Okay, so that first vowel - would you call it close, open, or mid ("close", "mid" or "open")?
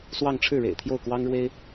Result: open